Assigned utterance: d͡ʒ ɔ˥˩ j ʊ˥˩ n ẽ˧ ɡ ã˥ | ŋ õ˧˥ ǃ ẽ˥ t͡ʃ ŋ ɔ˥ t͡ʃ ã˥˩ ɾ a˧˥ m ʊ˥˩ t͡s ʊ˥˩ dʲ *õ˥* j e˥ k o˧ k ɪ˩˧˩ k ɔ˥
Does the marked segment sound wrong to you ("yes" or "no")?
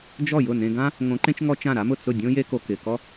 no